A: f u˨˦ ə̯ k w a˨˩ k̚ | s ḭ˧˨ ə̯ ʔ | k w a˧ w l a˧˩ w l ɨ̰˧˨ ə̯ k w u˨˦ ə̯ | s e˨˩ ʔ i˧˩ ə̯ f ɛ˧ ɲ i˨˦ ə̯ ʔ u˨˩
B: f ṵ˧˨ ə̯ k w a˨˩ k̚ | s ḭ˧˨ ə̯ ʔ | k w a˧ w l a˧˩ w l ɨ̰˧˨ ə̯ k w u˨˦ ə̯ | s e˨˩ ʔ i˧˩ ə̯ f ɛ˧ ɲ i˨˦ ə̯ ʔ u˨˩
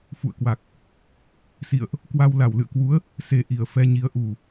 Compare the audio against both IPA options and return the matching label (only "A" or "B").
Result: B